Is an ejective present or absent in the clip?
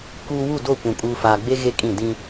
present